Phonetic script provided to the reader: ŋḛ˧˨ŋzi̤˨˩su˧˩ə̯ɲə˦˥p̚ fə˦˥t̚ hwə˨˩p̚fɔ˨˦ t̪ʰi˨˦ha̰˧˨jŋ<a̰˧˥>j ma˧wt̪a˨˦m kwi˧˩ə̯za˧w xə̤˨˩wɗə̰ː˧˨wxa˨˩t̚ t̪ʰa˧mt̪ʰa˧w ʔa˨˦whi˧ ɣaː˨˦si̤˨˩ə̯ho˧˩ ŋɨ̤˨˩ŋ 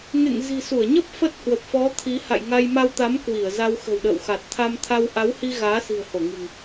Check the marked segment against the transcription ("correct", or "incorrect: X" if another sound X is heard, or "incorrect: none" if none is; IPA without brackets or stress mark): incorrect: a˧